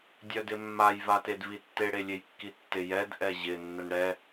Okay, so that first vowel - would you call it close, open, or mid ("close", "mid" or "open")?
mid